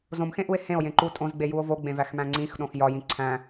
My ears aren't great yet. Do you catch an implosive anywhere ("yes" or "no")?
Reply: yes